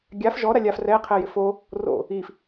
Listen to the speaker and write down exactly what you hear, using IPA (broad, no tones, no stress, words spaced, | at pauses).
ɡʲaf ʒɔ ɾalʲaf rɛ qʰɛjɪfo | ro̰ | if